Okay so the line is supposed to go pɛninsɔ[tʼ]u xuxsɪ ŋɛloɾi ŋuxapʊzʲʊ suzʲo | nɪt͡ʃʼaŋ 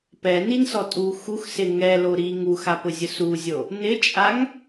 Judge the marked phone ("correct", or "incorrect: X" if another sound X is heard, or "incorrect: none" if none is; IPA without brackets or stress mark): correct